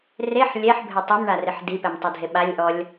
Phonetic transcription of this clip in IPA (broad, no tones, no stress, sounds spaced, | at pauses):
r e ħ lʲ ɛ ħ bʱ ɪ tˤ i m ɳ a r ɪ ħ d i p ɛ m tˤ e dʱ e ɓ a lʲ ʔ ɔ lʲ